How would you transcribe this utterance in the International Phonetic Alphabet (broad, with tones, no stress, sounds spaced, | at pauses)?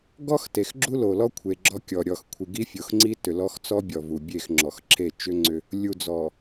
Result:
ɡ ɔ˦ x t e˨ x ɡ͡ǁ u˦ l o˨ l ɔ˦ kʷʰ e˨ ɡ͡ǁ ɔ˦ kʲ ɔ˨ ɾʲ ɔ˨ x kʷʰ i˨ ɡ i˦ fʲ o˨ x ŋ͡ǀ i˦ t ʏ˨ l ɔ˦ x t͡s ɔ˦ bʲ ɔ˨ v u˨ bʲ e˦˨ x ŋ͡ǁ ɔ˨ x ǁʰ e˦˨ t͡ʃ ʏ˦ ŋ͡ǀ ʏ˦ | lʲ u˨ d͡z ɔ˨